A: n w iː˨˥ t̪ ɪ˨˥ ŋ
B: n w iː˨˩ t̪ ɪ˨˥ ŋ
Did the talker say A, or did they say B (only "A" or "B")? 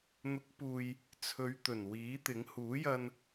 A